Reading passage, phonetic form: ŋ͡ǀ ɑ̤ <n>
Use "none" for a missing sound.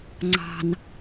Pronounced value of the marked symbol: n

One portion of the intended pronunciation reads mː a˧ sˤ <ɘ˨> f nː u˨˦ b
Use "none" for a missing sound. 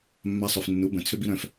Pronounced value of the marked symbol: ø˨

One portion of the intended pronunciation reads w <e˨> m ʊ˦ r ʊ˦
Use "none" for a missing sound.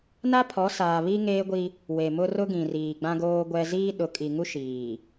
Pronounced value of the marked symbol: e˨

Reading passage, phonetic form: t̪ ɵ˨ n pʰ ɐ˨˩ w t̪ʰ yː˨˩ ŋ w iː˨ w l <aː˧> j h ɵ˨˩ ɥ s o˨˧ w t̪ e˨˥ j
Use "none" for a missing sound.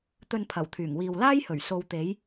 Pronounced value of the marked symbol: aː˥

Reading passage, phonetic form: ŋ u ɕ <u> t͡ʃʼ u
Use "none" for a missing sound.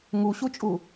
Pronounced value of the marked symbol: u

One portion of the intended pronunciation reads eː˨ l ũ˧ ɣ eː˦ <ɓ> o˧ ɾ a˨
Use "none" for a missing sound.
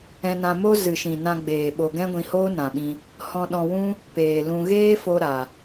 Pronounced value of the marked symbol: f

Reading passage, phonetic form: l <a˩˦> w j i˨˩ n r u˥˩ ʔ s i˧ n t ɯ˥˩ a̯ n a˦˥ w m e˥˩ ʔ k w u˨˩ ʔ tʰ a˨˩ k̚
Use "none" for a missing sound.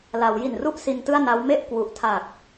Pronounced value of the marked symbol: a˩˦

